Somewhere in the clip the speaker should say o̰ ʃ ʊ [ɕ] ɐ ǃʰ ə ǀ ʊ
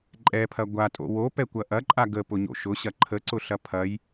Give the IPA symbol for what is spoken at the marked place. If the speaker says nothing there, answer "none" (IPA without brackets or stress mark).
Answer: ɕ